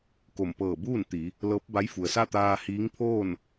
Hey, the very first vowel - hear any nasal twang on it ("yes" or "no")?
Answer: no